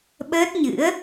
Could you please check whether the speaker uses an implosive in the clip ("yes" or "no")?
yes